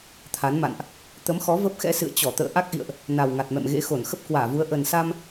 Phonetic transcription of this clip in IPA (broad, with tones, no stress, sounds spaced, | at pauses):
t̪ʰ a˨˦ n m a̰˧˨ n ʔ | t̪ ə˨˦ m x ɔ˨˦ v ə˦˥ p̚ x ɛ̰˧˥ s ɨ̰˧˨ ə̯ t͡ɕ ɔ˧˩ t̪ ə̰ː˧˨ ʔ a˦˥ k̚ ʔ ḭ˧˨ ə̯ ʔ | n a˨˩ w ŋ a˨˩ t̚ m ɛ̰˧˨ m ɣ ḛ˧˥ x o˧˩ n x ə˦˥ p̚ k w aː˧˩ v u˨˦ ə̯ ʔ ə˨˩ n s a˧ m